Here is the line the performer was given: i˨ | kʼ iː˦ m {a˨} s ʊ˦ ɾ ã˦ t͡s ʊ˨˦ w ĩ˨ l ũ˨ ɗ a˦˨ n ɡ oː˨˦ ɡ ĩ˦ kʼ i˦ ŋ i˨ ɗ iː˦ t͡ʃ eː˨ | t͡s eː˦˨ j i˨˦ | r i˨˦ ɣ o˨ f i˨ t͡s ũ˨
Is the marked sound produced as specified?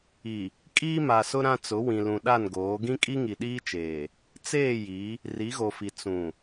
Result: yes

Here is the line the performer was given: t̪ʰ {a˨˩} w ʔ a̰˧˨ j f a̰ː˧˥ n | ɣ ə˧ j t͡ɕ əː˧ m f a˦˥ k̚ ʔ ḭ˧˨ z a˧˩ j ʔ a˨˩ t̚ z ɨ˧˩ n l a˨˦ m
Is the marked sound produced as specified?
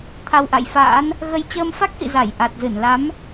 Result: no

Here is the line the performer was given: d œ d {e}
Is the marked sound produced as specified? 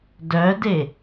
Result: yes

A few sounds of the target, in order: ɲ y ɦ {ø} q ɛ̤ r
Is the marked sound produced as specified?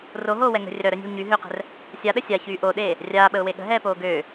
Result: yes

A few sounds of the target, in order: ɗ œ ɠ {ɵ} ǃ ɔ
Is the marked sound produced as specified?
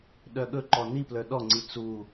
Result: yes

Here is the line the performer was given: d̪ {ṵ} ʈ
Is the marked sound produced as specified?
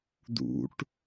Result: yes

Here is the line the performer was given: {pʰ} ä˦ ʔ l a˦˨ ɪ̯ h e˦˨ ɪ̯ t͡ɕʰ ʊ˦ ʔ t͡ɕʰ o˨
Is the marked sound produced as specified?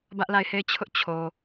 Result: no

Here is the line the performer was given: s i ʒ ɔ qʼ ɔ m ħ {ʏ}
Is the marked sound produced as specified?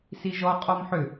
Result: yes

